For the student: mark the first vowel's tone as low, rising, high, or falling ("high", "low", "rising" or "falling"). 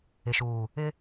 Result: low